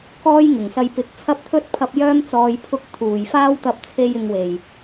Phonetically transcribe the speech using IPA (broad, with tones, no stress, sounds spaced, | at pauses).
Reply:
k ɔː˥ j ŋ ɪ˨˩ ŋ s ɐ˧ j p ɪ˨˥ k̚ t͡sʰ ɐ˥ p̚ t̪ʰ ɵ˥ t̚ pʰ ɐ˧ p̚ j œː˥ m t͡s ɔː˨ j pʰ ʊ˧ k̚ t̪ʰ uː˨˩ j f aː˥ w t̪ ɐ˧ p̚ t͡sʰ e˧ j ɪ˨ ŋ w e˨˩ j